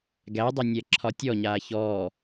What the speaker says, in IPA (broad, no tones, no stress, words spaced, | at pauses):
ɡædˤø nʲɛǁʰɒtʲɔɲaː çɔː